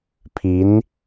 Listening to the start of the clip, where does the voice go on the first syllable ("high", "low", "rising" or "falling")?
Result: rising